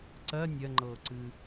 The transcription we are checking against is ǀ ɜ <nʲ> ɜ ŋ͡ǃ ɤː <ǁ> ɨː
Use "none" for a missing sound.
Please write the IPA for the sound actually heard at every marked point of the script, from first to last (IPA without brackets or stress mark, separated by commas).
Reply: nʲ, ǀ